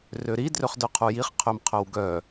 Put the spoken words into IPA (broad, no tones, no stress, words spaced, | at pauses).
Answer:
røɾi drøχdœqʰujiχ qʰømqʰœwɡœ